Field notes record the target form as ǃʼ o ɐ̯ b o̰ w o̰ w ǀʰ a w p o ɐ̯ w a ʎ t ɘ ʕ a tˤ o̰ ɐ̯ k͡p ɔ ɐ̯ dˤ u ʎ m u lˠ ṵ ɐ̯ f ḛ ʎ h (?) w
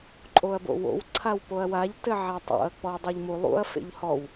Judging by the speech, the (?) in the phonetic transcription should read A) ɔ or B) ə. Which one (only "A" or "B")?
A